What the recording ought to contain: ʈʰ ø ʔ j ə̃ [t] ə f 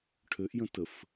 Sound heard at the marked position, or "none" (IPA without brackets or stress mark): t